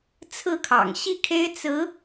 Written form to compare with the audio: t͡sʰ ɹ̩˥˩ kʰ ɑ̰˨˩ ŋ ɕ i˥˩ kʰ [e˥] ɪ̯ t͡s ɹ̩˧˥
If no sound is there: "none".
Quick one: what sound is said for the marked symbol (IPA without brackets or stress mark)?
e˥